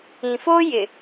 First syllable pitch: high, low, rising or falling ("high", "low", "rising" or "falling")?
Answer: low